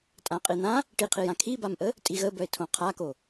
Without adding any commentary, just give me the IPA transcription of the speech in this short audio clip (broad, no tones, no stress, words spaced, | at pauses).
tʼãqʼin̪ã | ʈiqʰijã kʰibamʔə | tʼiɣəbœɪ̯ tʰõqʰako